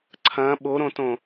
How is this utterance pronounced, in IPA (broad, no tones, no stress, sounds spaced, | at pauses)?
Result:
ǀʰ ɐ̃ ɓ o ɾ õ t õ